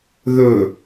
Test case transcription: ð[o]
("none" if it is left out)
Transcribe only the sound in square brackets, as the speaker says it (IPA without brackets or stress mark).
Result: ɵ